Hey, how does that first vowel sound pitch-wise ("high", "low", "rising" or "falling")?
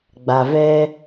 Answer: low